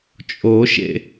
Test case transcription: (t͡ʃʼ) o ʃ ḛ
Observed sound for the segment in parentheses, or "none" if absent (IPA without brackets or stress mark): t͡ʃʼ